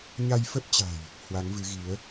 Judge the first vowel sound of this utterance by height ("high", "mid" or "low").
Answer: low